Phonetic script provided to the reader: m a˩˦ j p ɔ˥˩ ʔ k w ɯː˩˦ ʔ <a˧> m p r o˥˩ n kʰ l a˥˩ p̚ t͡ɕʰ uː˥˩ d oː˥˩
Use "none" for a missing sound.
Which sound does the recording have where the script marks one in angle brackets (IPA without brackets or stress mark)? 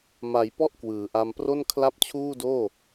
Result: a˧